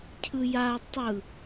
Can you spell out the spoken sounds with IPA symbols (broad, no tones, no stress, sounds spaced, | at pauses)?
cʰ ɯ j a tˤ ɯ